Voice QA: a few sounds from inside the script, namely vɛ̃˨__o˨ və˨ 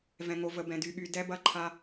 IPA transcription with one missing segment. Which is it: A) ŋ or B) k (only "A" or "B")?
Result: A